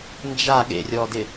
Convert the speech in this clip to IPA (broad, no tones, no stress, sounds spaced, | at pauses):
n d͡ʒ a ɠ ḛ rʲ ɔ d ɪ